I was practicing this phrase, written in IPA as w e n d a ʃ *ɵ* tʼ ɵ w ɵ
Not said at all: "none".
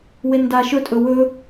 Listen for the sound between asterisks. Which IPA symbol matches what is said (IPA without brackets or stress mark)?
ɵ